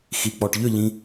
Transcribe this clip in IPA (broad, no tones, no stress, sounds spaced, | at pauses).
x i k͡p ɔ ʈ ʎ ʏ ʎ ĩ